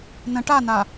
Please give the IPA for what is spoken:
nə̃ ʈana

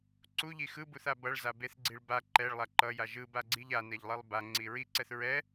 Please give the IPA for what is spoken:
ǀuʎi xɯbuθa bʌɭza beθɡ͡ǀiɭ ba ǃɛɭlˠa ǃʌja ʒɯbaɡ͡ǀiʎ anɛʎlˠelˠ baŋ͡ǀi ɹiǀɛθ ɹɛ

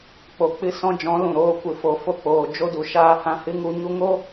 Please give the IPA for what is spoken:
k͡po˨k͡pɨ˧sɔ̃˧d͡ʒɔ̃˨˦ lũ˨ɾoː˧ kʷɨ˨fo˨ fo˧k͡poː˨ d͡ʒo˧du˨ ʃaː˧hã˧hɨ˦ŋu˧ ɲu˧ŋo˦

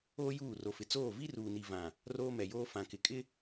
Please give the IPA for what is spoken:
oː˦juː˦˨ro˨fɪ˨ t͡soː˦˨vi˦ruː˨ni˨ vã˨ | roː˦mɛ˨joː˦ fã˨kɪ˨kʼɪ˦

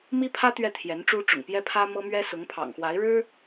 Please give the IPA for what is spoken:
mi˥pʰä˥ t̪ɥɛ˥˩t̪ʰjɛ˧˥nʈ͡ʂu˥ ʈ͡ʂʊ̰˨˩ŋpjɛ˥pʰä˥ mɤ˥mɥɛ˥ sʊ˧˥ŋpʰɑ̰˨˩ŋxwa˧˥ɪ̯ɻɻ̩˥

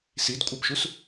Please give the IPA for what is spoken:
sidkʷʼɜpʃus

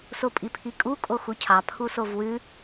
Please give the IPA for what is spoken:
sopʼipʰikʼu kʼoxucʰɑ pʰusovwʉ

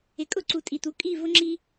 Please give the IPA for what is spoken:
ɪ˩kʼʊ˥˩ǀu˩ tʼi˩t̪u˩˥ kʼi˥˩ vʊ˥ ŋ͡ǁi˥

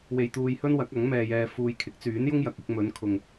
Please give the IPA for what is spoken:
we˧jt̪uː˧jhɵ˥nwɐ˨˥k̚ ɐ˨˥ŋmɛː˧jɛː˧ fuː˧j kʰɪ˨˥k̚t͡syː˨˥njʊ˥ŋ jɐ˨k̚ɪ˨˥k̚ mɵ˨˧nkʰʊ˨ŋ

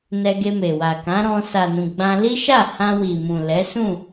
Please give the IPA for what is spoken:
nɛ˧ɡe˧me˨wa˨ kã˨˦ɾɔ̃˧ sa˨nũ˨ ɡ͡bã˧li˦ ʃa˦˨ hã˧wi˨mũ˨ lɛ˨˦sũ˦˨

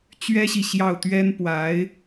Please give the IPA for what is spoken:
t͡ɕɥɛ˥ɕi˨ ɕjɑ˥˩ʊ̯t̪ɥɛ˥npwa˧˥ɪ̯

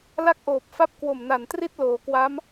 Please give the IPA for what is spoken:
la˥˩k̚ʔoː˨˩p̚fa˥˩p̚ kwo˨˩mna˨˩n tri˥˩t̚ loː˩˦kwa˦˥m

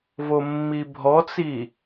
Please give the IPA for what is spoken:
vomːibʱɔt͡si

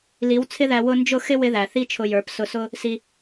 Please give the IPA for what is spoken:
li˨˦wt͡sʰɪ˦ðæ˧ wʊ˧nd͡ʒʊ˦˨xɪ˦ wɪ˦ðæ˨ θi˦t͡ʃʰʊ˧jə˞˨˦p sʊ˧sʊ˦ | si˧

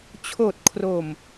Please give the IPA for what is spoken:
t͡ɕʰoː˨˩t̚ kʰroː˨˩m

